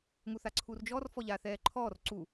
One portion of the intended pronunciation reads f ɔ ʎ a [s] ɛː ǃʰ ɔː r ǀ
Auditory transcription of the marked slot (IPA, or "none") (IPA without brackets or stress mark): θ